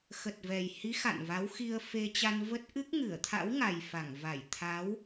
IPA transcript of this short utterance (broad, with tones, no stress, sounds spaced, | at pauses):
x ə˨˩ t̚ v ɛ˨˩ j h i˨˦ x a̰˧˨ n v a˨˦ w x i˧ ə̯ f e˧ t͡ɕ a˧ n v ə˦˥ t̚ ʔ ɨ˦˥ k̚ ŋ ɨ˧˩ ə̯ t̪ʰ a̰˧˥ w ŋ a˨˩ j f a˧˩ ŋ v a˧˩ j t̪ʰ a˨˦ w